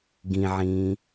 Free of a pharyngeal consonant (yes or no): no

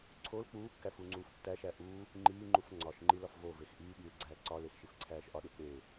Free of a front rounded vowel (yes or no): yes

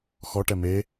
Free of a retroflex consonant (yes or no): no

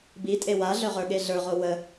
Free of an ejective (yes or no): no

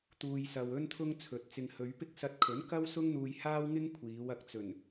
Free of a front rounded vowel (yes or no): yes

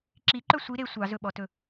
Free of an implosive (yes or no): no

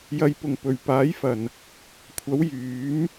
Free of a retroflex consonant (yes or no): yes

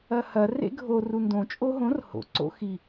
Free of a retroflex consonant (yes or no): yes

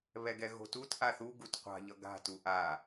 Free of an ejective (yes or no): yes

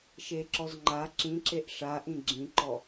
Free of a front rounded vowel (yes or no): yes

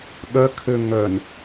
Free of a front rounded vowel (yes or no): no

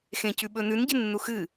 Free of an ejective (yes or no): yes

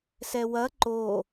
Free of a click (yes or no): no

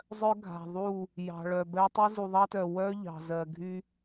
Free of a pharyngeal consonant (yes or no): yes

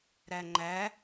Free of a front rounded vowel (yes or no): yes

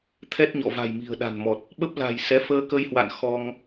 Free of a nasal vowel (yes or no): yes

